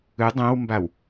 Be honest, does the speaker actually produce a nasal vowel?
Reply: yes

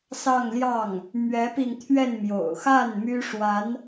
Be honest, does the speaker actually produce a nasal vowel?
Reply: no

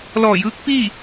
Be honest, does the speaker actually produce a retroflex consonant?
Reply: no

